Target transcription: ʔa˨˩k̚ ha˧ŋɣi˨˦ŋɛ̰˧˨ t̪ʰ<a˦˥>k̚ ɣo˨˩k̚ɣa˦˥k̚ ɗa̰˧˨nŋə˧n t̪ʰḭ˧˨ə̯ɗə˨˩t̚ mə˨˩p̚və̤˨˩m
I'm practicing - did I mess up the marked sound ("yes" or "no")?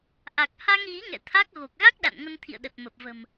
no